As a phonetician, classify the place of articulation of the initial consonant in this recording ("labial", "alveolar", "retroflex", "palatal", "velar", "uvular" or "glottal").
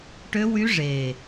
retroflex